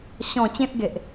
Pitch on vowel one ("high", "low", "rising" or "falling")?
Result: falling